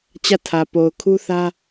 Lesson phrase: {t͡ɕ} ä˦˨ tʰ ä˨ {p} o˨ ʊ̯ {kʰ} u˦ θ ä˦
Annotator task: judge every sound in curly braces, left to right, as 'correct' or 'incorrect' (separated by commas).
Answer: correct, correct, correct